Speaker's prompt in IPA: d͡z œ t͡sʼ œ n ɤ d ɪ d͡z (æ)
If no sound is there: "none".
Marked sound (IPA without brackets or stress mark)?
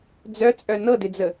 ə